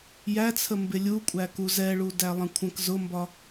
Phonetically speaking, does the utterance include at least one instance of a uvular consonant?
no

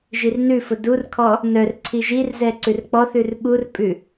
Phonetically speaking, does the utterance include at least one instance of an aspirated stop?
yes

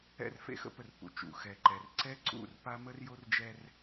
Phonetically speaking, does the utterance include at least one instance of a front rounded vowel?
no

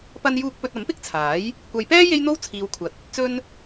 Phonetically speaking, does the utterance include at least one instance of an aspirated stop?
yes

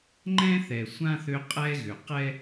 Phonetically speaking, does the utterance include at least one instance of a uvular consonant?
yes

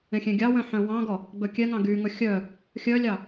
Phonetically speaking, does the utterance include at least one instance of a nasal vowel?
yes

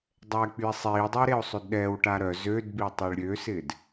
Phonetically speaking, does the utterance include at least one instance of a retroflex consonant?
yes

